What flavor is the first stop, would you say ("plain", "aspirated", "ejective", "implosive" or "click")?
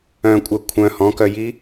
ejective